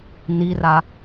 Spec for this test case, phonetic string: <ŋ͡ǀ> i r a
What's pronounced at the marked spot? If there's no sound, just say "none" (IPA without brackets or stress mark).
n